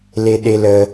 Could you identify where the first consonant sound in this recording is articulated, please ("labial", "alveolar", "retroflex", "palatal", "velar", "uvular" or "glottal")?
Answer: alveolar